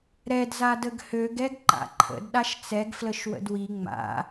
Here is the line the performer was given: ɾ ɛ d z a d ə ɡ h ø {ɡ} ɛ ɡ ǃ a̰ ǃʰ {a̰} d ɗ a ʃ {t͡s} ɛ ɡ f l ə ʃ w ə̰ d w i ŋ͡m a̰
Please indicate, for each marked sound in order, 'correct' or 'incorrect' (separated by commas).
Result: correct, incorrect, correct